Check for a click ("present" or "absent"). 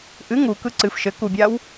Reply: present